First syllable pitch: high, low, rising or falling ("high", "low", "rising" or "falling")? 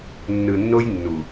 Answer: low